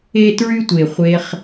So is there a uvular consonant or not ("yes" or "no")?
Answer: yes